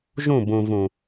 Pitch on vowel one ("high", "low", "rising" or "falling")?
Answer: falling